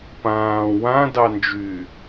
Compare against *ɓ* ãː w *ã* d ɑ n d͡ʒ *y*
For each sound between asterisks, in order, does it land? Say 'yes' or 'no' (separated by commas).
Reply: no, yes, yes